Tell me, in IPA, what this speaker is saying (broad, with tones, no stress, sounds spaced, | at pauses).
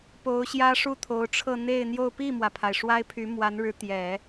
p o˧˥ ʊ̯ ɕ j ä˥ ʂ u˥˩ t̪ʰ o˧˥ ʊ̯ ʈ͡ʂʰ ɤ˥˧ n̪ e˥˧ ɪ̯ n̪ j o˥˧ ʊ̯ p i˥˩ m w ä˩ pʰ a˩ ɪ̯ ʂ w a˥ ɪ̯ pʰ y˧˥ m w a˧˥ n ɻ ɻ̩˧˥ t̪ j ɛ˨˩˦